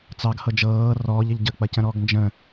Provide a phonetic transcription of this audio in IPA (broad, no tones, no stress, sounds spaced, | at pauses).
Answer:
t͡s ɑ ɡ h ɤ d͡ʒ ɤː r ɔː ʎ ə ʎ ɟ ə k͡p ɐ c ə̃ ɾ ɔː ɡ n d͡ʒ ə̃